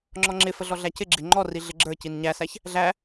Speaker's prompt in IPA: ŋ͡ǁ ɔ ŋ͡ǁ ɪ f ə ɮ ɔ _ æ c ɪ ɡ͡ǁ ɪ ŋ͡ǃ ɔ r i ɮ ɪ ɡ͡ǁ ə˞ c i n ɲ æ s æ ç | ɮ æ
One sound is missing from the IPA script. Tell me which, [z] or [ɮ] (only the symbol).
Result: ɮ